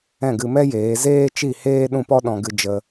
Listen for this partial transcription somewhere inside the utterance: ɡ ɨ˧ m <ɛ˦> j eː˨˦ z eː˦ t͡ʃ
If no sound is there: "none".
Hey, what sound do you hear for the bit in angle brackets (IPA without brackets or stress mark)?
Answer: ɛ˦